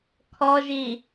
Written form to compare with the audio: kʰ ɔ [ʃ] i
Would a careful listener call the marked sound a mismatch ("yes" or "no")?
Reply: yes